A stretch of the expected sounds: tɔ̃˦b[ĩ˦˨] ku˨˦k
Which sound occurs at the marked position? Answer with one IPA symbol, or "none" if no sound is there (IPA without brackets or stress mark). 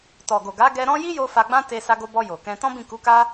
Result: ĩ˦˨